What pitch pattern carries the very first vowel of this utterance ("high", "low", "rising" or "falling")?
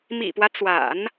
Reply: low